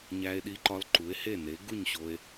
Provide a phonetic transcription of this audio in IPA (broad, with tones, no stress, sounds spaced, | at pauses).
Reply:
ɲ æ˧ e̯ ɗ i˧ ǃ ɒ˧ l ǃ u˩˥ e̯ h e˥˩ n e˩˥ ɡ u˥˩ ɲ ɕ o˧ e̯